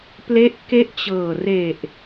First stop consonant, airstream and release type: plain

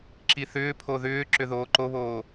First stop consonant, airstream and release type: click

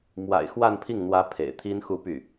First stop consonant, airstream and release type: aspirated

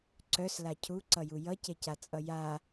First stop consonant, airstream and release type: click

